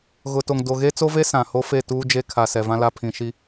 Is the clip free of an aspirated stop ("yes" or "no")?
no